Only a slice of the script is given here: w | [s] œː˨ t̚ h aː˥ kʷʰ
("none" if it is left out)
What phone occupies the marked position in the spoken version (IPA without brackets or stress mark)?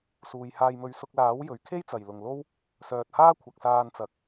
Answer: s